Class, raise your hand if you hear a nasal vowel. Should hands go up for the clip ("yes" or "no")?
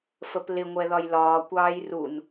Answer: no